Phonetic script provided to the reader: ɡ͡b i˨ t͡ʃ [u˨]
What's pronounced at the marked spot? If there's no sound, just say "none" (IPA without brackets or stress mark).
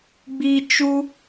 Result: u˦